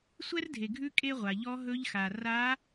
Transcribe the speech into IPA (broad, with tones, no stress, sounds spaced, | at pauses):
sʷ ɛ˥ r dʱ e˩ ɡʱ ʉ˧˥ kʼ e˧ ʁʷ a˩ ʎ ɔ˧˥ ɦ ɵ˧˥ ʎ x a˩ r a˧˥